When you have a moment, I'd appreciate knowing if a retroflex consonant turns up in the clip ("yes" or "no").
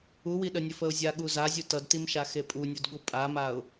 no